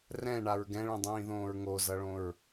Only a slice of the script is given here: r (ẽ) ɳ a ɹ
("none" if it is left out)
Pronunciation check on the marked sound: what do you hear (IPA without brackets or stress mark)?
ɛ̃